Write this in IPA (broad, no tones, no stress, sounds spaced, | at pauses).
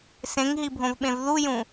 s ẽ ŋ ɦ i bʱ õ v ɓ ẽ v ð u j ũ